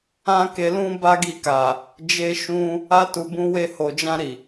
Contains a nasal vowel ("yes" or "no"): yes